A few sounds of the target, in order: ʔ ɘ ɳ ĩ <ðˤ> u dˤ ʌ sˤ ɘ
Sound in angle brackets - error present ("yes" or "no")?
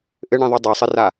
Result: no